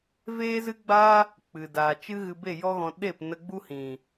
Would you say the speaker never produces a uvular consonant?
yes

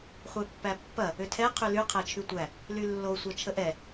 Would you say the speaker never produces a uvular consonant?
no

